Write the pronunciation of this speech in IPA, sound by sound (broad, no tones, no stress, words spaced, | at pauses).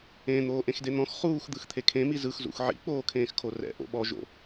ẽ n̪oːʔẽxden̪ɔ̃x χuːx d̪ɯxt̪ʰekʰẽmi zɯxzṵx ʕḭk͡poː kʰẽːxkʰorɛ̰ ʔo̰ɓɔʒo̰